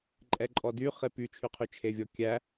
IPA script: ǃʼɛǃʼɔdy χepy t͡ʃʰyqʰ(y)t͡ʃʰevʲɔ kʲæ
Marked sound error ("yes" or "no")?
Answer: no